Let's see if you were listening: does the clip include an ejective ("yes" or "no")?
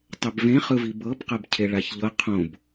no